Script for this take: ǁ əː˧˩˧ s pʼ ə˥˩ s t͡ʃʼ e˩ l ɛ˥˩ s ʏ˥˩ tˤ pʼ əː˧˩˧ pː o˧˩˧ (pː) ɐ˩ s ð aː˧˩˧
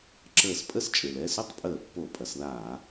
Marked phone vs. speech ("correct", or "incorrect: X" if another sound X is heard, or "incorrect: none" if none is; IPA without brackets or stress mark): incorrect: pʼ